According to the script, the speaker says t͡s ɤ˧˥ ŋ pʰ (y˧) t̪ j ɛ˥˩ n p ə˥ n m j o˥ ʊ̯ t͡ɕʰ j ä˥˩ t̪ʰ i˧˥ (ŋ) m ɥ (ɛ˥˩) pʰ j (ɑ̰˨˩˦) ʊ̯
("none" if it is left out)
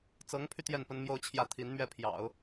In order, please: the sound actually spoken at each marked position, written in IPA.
y˧, n, ɛ˥˩, ɑ̰˨˩˦

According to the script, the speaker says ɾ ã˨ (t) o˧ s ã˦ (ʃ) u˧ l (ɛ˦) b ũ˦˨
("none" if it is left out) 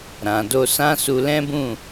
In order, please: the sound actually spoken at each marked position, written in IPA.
d, s, ɛ̃˦

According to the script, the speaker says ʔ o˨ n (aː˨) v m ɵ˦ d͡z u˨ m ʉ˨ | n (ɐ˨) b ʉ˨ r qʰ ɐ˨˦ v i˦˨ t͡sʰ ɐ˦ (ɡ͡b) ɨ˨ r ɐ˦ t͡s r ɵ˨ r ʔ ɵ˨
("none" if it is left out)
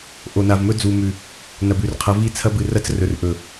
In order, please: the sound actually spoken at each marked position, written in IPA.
a˨, ɐ˨, b

